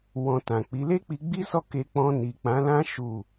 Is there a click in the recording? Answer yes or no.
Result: no